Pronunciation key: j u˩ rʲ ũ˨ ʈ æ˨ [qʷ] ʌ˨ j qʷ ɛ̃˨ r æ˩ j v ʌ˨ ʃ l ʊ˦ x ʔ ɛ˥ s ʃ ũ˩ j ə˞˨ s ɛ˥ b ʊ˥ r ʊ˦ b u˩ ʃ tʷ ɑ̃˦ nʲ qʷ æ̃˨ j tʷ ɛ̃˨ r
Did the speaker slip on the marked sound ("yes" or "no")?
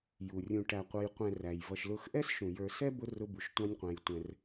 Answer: no